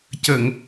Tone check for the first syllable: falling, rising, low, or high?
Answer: low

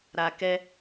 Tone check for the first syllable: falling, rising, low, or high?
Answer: low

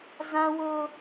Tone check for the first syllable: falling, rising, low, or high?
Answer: high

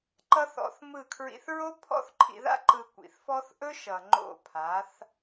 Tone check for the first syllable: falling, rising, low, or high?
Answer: high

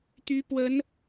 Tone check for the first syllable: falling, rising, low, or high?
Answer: rising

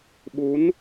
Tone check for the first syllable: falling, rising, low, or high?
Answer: rising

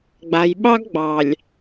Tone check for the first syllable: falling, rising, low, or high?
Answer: low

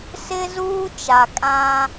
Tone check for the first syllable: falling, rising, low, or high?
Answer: high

